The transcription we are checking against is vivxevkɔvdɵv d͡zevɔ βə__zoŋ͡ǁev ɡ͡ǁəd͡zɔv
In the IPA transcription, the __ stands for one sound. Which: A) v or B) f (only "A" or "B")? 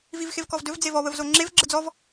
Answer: A